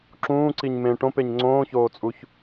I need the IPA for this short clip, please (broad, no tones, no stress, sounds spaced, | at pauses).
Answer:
ǁ ũː ǀ i ɲ m ẽ ʈ õ p e ɲ ŋ͡ǀ õː ç oː t͡sʼ u ç